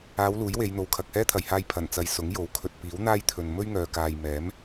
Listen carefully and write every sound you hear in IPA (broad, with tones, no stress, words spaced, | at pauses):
aː˨˧w luː˨˥jwe˨˧jn̪o˨w kʰɐ˨k̚hɛː˥t̪ʰɐ˨jhaː˧j pʰɐ˨˩nt͡sɐ˨j sʊ˨˥ŋjo˨˥w kʰɵ˨t̚piː˨˥wn̪aː˥jt̪ʰɵ˨n mɵ˥ɥŋœː˨kaː˨j mɛː˨˥m